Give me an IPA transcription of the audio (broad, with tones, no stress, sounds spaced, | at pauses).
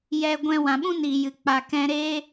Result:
j ɛ˧ ɡʷ ɛ̃˧ w ã˨ ɓ ũ˦ n iː˨ j ɨ˨ k͡p a˨ k ɛ̃˧ ɾ eː˦